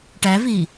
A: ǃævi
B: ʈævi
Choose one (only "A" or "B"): B